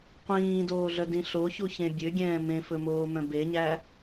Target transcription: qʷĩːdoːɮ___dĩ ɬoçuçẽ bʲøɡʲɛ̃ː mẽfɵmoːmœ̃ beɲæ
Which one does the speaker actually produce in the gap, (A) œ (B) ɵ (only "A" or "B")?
A